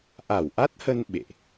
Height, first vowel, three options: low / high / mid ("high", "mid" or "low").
low